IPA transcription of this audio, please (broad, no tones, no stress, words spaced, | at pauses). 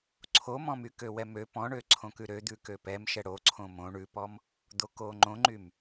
ǀʰomɔ̃mykø wɛmø pɔ̃ɳøǀʰõkʉ ɾød̪ʉ køpɛmʃɛ ɽoǀʰõ mõ ɳʉpɔm | d̪okoŋ͡ǃõŋ͡ǃym